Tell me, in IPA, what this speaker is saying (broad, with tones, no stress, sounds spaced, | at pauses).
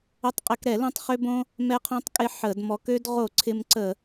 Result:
ə˧ tˤ qʼ ɪ˧˩˧ k ɾ ɛ˧˩˧ l õ˧ tˤ χ ø˧ b õ˧ | m ɛ˧ qʰ õ˧ tˤ kʼ ɪ˧ ħ ə˧˩˧ d m ɔ˧ k ø˧ d ʁ o˧˩˧ ǀʰ ɪ˧ m ǀ ə˧˩˧